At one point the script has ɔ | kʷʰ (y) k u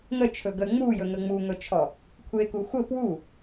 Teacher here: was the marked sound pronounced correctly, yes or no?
no